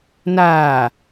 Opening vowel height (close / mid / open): open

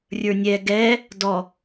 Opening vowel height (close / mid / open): mid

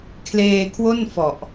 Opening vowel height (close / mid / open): mid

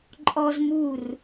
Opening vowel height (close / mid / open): mid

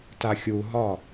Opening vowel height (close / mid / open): open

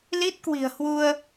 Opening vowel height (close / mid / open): close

